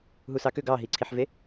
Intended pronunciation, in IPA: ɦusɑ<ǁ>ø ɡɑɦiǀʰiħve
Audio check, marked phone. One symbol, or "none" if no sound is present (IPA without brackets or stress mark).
k